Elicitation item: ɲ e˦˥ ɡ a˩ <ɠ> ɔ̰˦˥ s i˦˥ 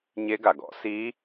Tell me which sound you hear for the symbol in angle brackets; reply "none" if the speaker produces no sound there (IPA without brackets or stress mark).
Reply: ɡ